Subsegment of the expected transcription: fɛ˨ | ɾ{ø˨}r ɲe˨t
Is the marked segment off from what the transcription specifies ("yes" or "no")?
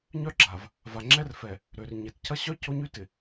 no